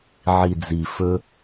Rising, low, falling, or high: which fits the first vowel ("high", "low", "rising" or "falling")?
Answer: low